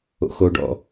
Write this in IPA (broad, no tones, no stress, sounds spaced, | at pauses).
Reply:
o̰ x o ɖ ɔ̰